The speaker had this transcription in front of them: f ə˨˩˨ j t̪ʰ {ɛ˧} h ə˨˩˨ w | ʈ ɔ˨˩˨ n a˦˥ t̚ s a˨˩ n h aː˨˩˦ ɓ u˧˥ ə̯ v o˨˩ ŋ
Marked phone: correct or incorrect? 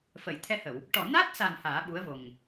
correct